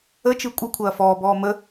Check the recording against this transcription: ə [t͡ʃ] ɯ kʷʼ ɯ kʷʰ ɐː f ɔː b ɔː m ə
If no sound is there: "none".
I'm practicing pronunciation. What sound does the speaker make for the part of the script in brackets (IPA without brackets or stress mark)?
t͡ʃ